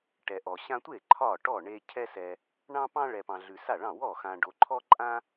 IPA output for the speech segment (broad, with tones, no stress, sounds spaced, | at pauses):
ʈ ɛ˨ ʔ ɔ˨ ɕ ã˦ tʷ e˥˩ ǃʰ ɒ˥˩ ʈ ɔ˥˩ ɳ e˦ cʰ ɛ˦ s ɛ˨ | ɳ ɑ̃˦ p ɑ̃˦ ɭ ɛ˨ p ɑ̃˨ ɮ ʉ˨ s a˥˩ ɭ ɑ̃˥˩ w ɔ˥˩ x ã˨ ɖ o˨ ǃʰ ɔ˦ ǃʼ ã˦